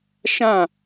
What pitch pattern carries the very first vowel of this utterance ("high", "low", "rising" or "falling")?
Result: falling